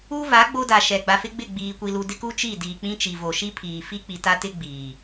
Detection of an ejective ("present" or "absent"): absent